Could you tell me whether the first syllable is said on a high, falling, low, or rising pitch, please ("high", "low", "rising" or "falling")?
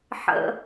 low